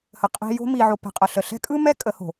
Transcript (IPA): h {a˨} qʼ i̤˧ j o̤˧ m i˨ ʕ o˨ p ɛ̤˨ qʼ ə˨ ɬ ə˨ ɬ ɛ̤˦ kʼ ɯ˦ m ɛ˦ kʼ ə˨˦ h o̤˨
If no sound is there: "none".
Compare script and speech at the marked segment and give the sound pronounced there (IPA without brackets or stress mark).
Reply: ə˨